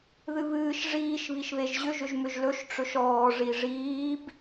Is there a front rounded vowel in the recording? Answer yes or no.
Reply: yes